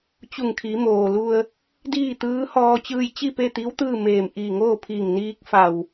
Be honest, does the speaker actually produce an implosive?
no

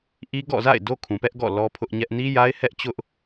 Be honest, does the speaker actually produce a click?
no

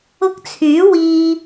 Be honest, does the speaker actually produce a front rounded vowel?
yes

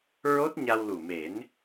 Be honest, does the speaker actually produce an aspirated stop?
no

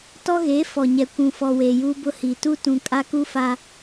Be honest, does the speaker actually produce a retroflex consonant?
no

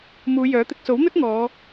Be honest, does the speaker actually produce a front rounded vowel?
yes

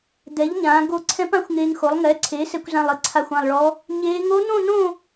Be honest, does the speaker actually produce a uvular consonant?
no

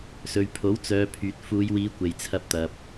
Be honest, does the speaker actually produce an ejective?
no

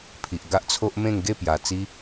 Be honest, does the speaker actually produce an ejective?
no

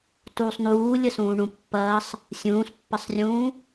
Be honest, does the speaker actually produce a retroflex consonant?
yes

